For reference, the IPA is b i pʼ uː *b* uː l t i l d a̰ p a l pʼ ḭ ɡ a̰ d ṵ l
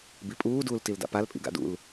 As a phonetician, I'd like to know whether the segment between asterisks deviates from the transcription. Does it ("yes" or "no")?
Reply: yes